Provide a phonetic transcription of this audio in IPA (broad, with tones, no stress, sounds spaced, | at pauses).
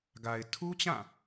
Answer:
ɡ a˨ ɪ̯ tʰ u˦ t͡ɕ ã˦˨